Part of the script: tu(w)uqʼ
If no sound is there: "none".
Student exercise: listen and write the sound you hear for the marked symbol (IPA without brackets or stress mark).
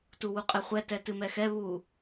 w